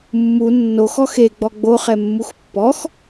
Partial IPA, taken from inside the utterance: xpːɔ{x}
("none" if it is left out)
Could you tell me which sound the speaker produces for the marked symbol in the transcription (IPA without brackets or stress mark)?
x